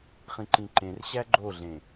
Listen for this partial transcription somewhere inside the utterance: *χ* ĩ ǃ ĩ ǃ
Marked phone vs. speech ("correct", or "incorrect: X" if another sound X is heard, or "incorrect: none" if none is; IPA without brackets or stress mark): correct